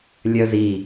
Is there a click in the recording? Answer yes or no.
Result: no